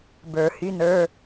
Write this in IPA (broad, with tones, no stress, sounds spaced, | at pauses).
b ə˞˨˩˦ h y˧˥˧ n ə˞˧˥˧